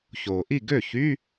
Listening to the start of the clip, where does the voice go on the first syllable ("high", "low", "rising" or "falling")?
low